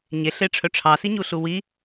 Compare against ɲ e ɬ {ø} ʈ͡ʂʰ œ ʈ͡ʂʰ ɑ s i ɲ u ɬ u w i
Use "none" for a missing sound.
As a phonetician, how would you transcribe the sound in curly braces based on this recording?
e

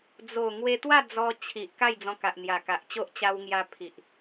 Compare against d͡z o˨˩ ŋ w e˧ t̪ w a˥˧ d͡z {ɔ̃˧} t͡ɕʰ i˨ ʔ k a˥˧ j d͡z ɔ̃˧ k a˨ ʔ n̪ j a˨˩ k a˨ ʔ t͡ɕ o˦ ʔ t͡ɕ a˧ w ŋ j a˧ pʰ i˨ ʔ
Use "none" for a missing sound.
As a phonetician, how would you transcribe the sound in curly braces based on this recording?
ɔ˧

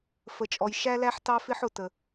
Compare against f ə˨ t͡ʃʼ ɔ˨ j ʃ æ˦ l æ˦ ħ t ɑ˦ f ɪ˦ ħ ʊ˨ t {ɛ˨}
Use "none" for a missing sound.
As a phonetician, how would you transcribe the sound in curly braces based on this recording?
ə˨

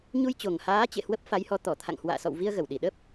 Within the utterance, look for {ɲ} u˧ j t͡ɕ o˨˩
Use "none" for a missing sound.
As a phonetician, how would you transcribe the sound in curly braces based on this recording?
ɲ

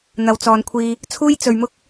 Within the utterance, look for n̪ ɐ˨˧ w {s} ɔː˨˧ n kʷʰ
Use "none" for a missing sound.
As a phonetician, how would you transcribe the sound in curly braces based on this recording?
t͡s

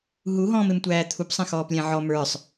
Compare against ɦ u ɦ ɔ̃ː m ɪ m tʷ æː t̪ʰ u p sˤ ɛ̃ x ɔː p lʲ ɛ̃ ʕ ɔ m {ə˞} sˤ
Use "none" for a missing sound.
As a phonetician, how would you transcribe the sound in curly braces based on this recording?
ə˞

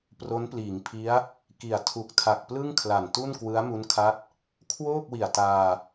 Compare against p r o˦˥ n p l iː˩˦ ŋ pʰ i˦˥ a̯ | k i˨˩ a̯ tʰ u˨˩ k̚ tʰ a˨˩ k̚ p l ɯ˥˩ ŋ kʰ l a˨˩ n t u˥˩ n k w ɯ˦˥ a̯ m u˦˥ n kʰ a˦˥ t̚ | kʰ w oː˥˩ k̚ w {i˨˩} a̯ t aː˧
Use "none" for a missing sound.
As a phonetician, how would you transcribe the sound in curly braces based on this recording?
i˨˩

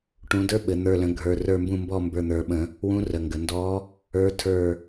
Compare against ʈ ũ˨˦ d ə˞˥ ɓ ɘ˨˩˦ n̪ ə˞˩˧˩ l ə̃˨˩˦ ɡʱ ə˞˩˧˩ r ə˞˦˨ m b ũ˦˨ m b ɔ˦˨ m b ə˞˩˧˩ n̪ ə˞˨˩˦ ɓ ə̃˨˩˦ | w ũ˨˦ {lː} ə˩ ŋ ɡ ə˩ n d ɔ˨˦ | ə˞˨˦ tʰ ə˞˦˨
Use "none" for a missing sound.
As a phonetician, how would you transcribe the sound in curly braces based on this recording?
r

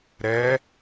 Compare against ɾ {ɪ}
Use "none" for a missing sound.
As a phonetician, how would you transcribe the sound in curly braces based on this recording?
ɛ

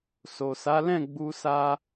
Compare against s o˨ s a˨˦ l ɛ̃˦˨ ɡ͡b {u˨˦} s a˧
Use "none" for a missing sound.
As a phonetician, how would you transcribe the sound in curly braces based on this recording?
u˧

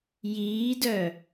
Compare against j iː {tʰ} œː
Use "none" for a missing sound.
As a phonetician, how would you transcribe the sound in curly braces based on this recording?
d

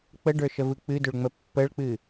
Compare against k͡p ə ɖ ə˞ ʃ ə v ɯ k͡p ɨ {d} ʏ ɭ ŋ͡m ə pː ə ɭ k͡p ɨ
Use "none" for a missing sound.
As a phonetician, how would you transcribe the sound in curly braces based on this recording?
d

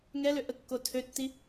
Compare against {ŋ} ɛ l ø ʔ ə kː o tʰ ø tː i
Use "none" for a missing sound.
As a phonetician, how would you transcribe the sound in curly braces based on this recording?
ŋ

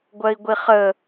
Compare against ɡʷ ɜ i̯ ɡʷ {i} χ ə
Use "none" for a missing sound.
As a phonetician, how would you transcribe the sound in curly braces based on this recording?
i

